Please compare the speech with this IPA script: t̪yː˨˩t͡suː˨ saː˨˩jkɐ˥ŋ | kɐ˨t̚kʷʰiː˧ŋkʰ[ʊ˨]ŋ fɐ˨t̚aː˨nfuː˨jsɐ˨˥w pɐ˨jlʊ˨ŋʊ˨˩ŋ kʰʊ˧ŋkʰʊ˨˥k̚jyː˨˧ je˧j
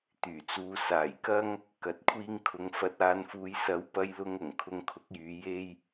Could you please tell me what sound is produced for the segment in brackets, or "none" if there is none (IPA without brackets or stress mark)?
ʊ˨